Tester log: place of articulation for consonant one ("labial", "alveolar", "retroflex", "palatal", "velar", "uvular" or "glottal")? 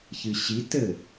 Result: palatal